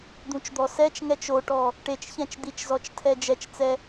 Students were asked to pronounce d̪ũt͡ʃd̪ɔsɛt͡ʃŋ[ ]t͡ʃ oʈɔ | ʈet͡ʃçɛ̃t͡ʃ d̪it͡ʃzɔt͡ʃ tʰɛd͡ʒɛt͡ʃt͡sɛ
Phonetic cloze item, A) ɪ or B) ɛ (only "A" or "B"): B